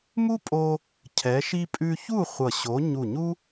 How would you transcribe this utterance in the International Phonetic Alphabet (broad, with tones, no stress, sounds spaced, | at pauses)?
m u˥ pʼ o˧ | cʰ ɛ˩˧ ʃ i˧ pʼ ʉ˧ ç u˥˨ χʷ ʌ˧˩ ɕ o˨˥ ɲ u˧˩ ɲ u˥